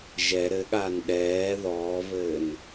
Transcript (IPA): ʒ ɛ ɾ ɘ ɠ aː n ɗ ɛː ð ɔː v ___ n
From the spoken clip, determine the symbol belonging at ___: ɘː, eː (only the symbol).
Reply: ɘː